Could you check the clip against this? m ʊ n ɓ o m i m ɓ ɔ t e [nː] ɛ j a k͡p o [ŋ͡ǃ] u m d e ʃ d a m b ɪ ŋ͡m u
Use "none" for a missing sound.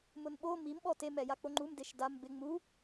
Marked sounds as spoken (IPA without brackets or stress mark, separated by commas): m, ŋ͡ǃ